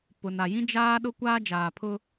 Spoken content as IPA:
p ʊ˨ n a˨ j ĩ˦ d͡ʒ aː˦ ɗ ʊ˦ kʷ aː˦ d͡ʒ aː˨ pʰ ʊ˦

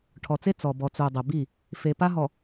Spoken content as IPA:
ʈʰ ɔ˨ t͡s e˦ t͡s ɔ˨ b ɔ˨ t͡s u˨ dˤ ɛ˨ b i˦˨ | f e˨ p a˦ ɦ ɔ˨

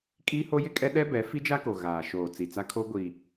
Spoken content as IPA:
kʼ iː˦ h o˦ j ɪ˦ kʼ ɛ˦ ɗ ɛ˦ b ɛ˨˦ f i˦ d͡ʒ a˦ k o˨ ɣ aː˨ ʃ oː˨ t͡s i˨ t͡s a˦ kʰ o˦ ɡʷ i˨

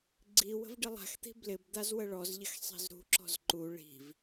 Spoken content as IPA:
ɡ͡ǀ i w ə̤ v ɖ ɪ lˠ a̤ x t̪ i̤ b l ɪ b d̪ a z w ə ɭ ɔ z ʎ ɪ x sˤ i̤ z ɾ ṳ ǁ ɔ̤ z ǃ u ɭ i̤ v

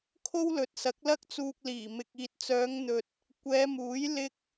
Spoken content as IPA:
kʰ o˥ w l ɵ˨ t̚ s ɐ˨˥ k̚ l ɐ˥ k̚ t͡s uː˧ k̚ l iː˨˩ m ɪ˨ k̚ iː˨ t̚ t͡s œː˨˧ ŋ n̪ ɵ˨ t̚ | kʷ ɛː˨˧ m uː˨˥ j l ɪ˥ k̚

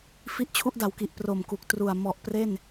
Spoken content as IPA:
f i˦˥ ʔ t͡ɕʰ u˦˥ ʔ d a˩˦ w k i˨˩ ʔ p r o˨˩ m k u˨˩ k̚ t r u˨˩ a̯ m ɔ˨˩ ʔ p r e˥˩ n

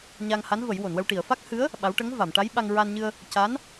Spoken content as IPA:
ɲ a˧ ŋ h a˧˥ n v ə˨˩˦ j w o˨˩˨ n w ə˧ w ʈ i˨˩˨ ə̯ f a˦˥ k̚ h ɨ˧˥ ə̯ | ɓ a˧˥ w ʈ ə˧˥ ŋ v a˨˩˨ m ʈ a˧˥ j ɓ a˧ ŋ ɹ a˧ n ɲ ɨ˧ ə̯ | c a˧˥ n

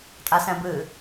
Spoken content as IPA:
tʼ a s ɛ̃ b ɨ

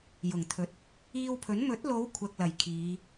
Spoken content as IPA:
j ʊ˨˩ ŋ t̪ʰ ɵ˨˥ t̚ | iː˧ w pʰ ɵ˨˥ n m ɵ˨˥ t̚ l o˨˧ w kʷʰ ɐ˨ k̚ l ɐ˨˩ j kʰ iː˨˧

